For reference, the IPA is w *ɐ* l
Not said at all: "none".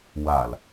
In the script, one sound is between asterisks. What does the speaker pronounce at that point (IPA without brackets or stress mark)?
a